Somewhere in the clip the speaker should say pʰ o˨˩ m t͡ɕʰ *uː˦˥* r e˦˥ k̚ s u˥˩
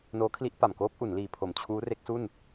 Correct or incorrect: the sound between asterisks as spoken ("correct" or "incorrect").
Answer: correct